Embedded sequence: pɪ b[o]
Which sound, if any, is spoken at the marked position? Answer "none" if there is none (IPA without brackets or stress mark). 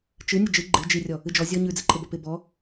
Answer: ɔ